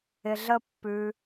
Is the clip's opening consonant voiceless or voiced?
voiced